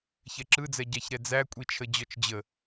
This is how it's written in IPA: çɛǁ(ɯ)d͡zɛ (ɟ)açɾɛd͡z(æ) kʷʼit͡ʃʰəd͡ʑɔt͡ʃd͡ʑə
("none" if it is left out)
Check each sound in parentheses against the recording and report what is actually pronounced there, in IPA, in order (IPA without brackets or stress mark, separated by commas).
ɯ, ɟ, æ